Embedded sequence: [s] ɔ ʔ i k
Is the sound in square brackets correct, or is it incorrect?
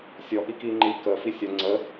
incorrect